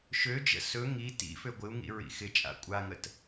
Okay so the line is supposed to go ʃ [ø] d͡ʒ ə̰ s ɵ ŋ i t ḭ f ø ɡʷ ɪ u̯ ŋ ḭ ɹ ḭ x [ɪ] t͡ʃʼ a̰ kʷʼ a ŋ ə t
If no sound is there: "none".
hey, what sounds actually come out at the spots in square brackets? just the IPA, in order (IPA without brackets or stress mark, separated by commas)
ø, ɪ